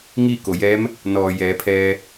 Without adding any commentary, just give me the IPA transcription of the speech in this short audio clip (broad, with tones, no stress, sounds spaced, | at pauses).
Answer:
ŋ iː˥˨ k o˩ j ɛː˧˥ m | n ɔː˩ j ɛː˩˧ pʰ ɛː˧